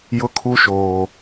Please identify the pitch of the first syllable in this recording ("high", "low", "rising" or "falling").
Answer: high